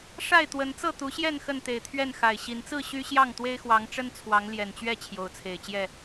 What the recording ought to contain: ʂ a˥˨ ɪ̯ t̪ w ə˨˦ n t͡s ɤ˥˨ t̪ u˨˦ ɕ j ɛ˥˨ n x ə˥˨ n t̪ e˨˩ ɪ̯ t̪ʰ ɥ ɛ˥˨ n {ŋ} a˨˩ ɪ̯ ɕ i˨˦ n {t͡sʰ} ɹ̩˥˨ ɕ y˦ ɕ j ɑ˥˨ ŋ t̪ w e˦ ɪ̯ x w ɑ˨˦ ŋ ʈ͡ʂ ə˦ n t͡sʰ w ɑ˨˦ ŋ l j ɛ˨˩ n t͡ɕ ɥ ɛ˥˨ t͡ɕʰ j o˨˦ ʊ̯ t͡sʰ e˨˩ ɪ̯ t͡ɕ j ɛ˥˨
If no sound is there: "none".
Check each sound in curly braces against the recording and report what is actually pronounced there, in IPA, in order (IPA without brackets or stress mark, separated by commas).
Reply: x, t͡s